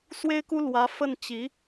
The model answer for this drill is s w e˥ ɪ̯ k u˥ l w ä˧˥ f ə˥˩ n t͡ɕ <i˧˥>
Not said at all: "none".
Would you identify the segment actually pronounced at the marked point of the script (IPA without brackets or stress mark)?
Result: i˧˥